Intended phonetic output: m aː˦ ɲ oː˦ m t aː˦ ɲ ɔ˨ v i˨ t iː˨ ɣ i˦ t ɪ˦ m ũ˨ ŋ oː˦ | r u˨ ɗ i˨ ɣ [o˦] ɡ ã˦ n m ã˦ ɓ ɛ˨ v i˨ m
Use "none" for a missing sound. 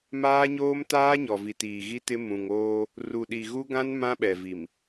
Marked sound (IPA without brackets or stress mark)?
u˦